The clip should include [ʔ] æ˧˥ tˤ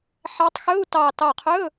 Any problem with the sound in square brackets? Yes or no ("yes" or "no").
yes